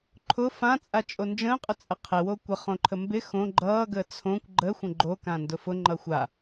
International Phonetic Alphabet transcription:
ǃʰʊ fãt͡sʼat͡ʃʼo nd͡ʒə̃ːqʼʊt͡sʼə qʰɪwo kʷəχõǃʰə mbɪ xõ ɡ͡ǃʌːɡəː t͡sʰõkʷ ɡ͡ǃəːxʷə̃ ɡ͡ǃokãndʊ fʊŋ͡ǃʌ xʷa

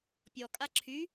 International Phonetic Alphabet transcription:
pʲɔkʼa ǁʰy

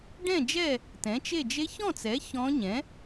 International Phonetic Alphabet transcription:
ɖɛ̃˥˨d͡ʒɛ˥˨ | tɛ̃˩˥t͡ʃe˥˨ d͡ʒe˧˥çɔ̃˥˨t͡sɛ˩˥ çɔ̃˧˥ɲɛ̃˩˥

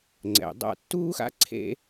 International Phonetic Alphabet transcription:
ŋ͡ǀɛ̰˩ dˤa̰˦ tːuː˥xa̰˥ǀʰḛ˦

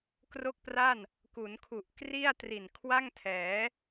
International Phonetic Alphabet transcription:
kro˥˩k̚pra˥˩n | ku˩˦nkʰu˨˩ʔ kri˥˩a̯tri˨˩n kʰwa˥˩ŋtʰɛː˩˦

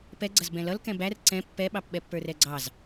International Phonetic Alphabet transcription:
pɛɡ͡ǀʌz bɛ̃lʌl kɛ̃bær ǀɛ̃ pːɛɓɑpɓɛpːə˞ rɛɡ͡ǀɑz

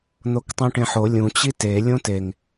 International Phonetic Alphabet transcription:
n̪oktˤũʈẽħo lʲũ t͡ɕite lʲõteŋ

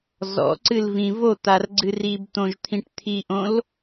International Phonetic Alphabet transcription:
zɔ̰ǀɨlvĩ vot̪arɡ͡ǀɨ ribt̪õʒt̪ʰĩʈ t̪ʰiʔõl

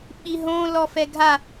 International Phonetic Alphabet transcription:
ɓiɦõ lɔfɛɡʱa

